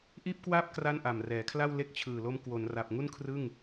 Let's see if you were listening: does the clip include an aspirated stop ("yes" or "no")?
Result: yes